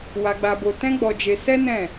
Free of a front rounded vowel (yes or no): yes